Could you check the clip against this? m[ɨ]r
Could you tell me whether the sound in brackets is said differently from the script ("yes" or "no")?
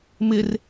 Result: yes